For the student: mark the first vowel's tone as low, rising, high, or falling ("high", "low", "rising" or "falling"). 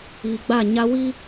low